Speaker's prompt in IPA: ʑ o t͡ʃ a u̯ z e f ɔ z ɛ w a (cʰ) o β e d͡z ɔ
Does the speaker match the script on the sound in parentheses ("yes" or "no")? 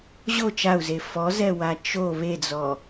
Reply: no